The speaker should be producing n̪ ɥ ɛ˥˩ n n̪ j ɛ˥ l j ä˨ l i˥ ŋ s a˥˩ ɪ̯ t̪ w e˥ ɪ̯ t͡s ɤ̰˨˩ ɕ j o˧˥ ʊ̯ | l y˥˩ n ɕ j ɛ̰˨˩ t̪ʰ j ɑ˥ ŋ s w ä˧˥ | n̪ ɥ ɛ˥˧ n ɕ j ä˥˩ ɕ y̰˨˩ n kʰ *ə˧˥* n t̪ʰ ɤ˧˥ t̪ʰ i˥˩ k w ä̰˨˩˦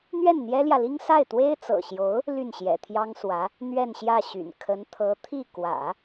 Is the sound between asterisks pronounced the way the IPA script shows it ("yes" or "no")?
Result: yes